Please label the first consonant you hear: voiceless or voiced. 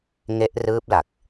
voiced